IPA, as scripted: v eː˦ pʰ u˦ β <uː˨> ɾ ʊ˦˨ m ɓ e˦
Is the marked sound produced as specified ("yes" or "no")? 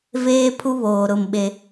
no